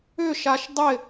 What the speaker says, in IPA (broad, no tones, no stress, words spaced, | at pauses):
ʏʃaʃ dˤɪ